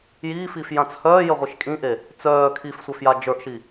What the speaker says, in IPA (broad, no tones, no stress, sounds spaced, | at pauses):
j iː f iː f j ã t͡s h œː j ə ʁʷ i ʃ kʼ ĩ ʔ e | t͡s œː kʰ i f sʷ œ f j a d͡ʒ ə˞ ʔ ʃ i